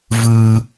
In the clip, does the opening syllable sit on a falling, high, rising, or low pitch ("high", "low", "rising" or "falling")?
high